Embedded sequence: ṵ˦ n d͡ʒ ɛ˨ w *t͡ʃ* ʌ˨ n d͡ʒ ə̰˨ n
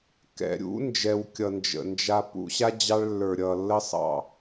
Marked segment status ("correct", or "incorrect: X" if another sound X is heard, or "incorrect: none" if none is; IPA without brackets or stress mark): incorrect: kʲ